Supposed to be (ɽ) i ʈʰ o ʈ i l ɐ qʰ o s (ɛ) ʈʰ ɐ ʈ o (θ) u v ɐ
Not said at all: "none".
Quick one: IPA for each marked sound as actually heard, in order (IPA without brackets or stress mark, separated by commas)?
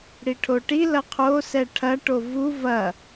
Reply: ɽ, ɛ, v